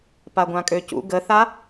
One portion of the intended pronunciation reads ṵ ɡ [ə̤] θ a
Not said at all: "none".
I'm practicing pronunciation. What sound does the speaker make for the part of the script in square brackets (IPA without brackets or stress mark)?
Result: ə